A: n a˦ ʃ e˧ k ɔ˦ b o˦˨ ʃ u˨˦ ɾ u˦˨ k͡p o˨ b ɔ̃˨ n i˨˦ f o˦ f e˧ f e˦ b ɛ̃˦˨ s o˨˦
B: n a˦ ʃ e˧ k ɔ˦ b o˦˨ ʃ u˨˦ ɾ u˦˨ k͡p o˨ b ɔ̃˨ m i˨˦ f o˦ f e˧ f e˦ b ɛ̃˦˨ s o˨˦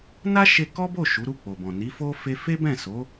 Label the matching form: A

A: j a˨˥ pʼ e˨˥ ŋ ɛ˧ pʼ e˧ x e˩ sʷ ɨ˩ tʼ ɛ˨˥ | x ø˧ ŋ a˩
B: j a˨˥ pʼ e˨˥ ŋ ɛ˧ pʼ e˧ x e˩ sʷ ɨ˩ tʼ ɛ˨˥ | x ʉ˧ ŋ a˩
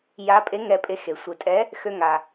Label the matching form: A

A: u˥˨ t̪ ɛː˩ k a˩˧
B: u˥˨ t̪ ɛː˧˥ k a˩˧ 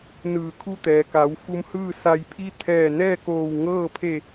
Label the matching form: A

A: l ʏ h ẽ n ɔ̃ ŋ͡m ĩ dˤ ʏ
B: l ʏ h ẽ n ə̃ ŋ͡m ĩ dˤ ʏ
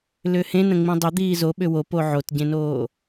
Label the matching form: B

